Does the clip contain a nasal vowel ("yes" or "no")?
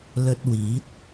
no